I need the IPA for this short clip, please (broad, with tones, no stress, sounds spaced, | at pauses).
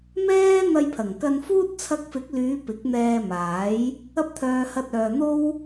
m ɛː˥ n̪ ɐ˧ j pʰ ɐ˨˩ ŋ k ɐ˧ n f uː˥ t̚ t͡sʰ ɐ˧ k̚ f ɪ˨˥ k̚ l yː˨˧ p ɪ˨˥ k̚ n̪ ɛː˧ m aː˨˥ j | ɐ˧ p̚ t̪ʰ œː˨ h ɐ˧ t̚ œː˨ n̪ o˥ w